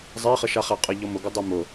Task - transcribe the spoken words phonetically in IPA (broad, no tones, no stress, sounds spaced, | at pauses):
zˤ e χ ə ʃ a χ æ qʼ ə ʎ ɔ m ʊ ɡ ʏ dˤ i m ʊ